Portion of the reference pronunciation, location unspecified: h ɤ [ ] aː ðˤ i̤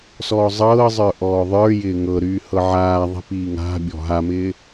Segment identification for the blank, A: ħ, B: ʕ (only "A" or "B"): B